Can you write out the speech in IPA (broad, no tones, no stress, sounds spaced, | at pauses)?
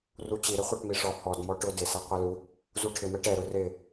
r u t͡ɕ i ɾ ɪ χʷ ɛ ʈ m i ʂ ɔ h ɔ d m ɔ ʈ ʊ d ɪ s e qʷ ɛ l u | z u ʈʰ ɪ m ɛ ʈ ɛ ɾ ʊ r ɪ